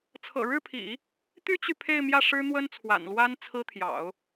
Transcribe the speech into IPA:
t͡sʰ ɤ̰˨˩ ɻ ɻ̩˥˩ pʰ ḭ˨˩˦ | t̪ y˥ t͡ɕ y˨ pʰ e˥˧ ɪ̯ m j ä˥˩ ʂ ɻ̩˥ n̪ w ə˥ n t͡sʰ w a̰˨˩ n l w a˥ n t͡sʰ ɹ̩˥ t̪ʰ j ɑ̰˨˩˦ ʊ̯

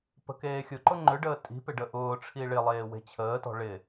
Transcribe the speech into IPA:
p ə̤ k eː xʲ ʊ ǃ ʊ ŋ͡ǃ ʏ ɖ əː tʼ i̤ p ɪ ɖ ə ʔ ʊː ʈ͡ʂʰ i ɭ ɪ lˠ eː w e̤ t͡ɕʰ əː t ɔ̤ ɭ ɪ

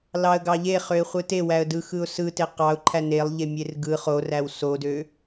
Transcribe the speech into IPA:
l ɑ ə̯ ɡ ɑ ʎ e χ ø ɪ̯ χʷ ɯ t e w æ ə̯ d ɯ x ɯ ʊ̯ s ɯ t e q ɑ ʊ̯ ǃʰ æ n e lˠ ʎ e mʲ e r ɡ ɯ χ o r æ w s o d ø

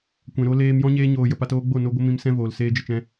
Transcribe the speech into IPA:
kʷ ɛ̃˨ ɾ o˧ l eː˧ m j ɔ̃˦ ɲ eː˧ ɲ oː˨ j ə˨ p a˧ t oː˦ ɡ͡b o˦˨ n o˦ ɡʷ ə˦ m ĩ˧ m s ɛ̃˦ v oː˨ l s eː˧ d͡ʒ ə˨ t͡ʃ ɛ̃˧

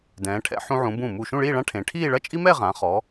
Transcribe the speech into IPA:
d ɛ̃ː˩˧ ʈʰ ɛ̰˧ ħ ũ˧ ʕ ũ˩˧ b ũ˧˩ m u˧˩ ʃ ũ˥˧ ɭ iː˥˧ ɭ ã˥ ʈʰ ẽ˩˧ ʈʰ iː˥˧ ɭ ɐ˥˧ t͡ʃʼ i˥ m ɛ˥˧ ʁ ã˩˧ χ ɔ˩˧

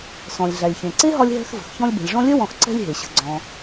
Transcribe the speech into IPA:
s ɔ̃˩ lʲ ɮ æ˩ lʲ ç ẽ˩ ǀ e˥ ɦ ɒ˦ lʲ ɦ ɛ̤˦ x v ə̤˩ x ç ɔ̃˦ lʲ b ɛ̤˩ lʲ ʐ ɔ̃˦ lʲ œ˥ w ɔ̃˨ x ǀ ɛ̤˦ lʲ ɦ e˩ ɕ ə̤˨ ɡ͡ǀ ɔ̃˨

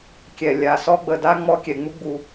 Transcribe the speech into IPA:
kʲ ɛ˨ lʲ a˨ s ɔ˦ ɡ͡b ə˨ d a˦ ŋ͡m ɔ˦ kʲ ɛ˨ ŋ͡m u˦ ɡ͡b u˨

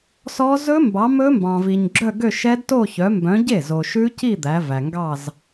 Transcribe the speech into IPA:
s ɔ˦˥ z ɵ˦˥ m b ɑ˨˦ m ɵ˦˥ m b ɑ̃˨ v i˨ ɲ ɡ͡ǁ œ˥˧ ɡ ø˥˧ ʃ ɛ˦˥ d t o˥˧ ç œ˨˦ m b œ̃˨˦ ɟ e˥˩ z o˨ ʃ ʉ˦˥ c i˥˧ d̪ æ˨˦ v æ˨ ŋ ɡ ɑ˥˧ z

